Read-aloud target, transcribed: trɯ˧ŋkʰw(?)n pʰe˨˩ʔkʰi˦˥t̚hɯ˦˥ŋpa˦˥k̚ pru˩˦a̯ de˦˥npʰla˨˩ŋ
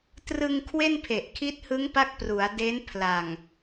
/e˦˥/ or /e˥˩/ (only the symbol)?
e˥˩